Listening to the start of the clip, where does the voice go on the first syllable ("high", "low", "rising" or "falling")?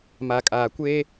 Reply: low